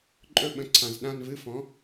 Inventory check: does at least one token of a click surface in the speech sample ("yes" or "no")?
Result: yes